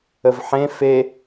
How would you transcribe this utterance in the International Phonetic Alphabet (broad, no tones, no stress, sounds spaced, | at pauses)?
ə v ħ ẽ f e